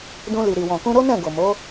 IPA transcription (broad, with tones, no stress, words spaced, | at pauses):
dũ˧li˨ ɾi˨wɔ̃˨kũ˧ ɾo˦nɛ̃˦˨ ɡo˨mo˨˦